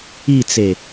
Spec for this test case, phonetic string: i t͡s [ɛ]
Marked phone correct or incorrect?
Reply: incorrect